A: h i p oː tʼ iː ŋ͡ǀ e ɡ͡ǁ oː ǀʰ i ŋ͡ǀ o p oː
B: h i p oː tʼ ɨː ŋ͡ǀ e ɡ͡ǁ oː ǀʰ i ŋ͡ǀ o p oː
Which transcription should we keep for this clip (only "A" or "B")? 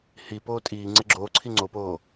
A